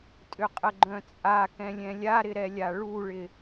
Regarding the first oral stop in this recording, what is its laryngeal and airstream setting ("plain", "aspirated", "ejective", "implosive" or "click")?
ejective